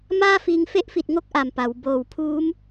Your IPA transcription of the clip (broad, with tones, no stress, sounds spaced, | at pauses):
m aː˥˩ f iː˧ ŋ f e˦˥ ʔ f i˨˩ t̚ ŋ o˥˩ k̚ ʔ a˨˩ m p a˩˦ w b oː˨˩ w pʰ uː˦˥ m